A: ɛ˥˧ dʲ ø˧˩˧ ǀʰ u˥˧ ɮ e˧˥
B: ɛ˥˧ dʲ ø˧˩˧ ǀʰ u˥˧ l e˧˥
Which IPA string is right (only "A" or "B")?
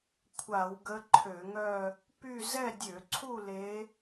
B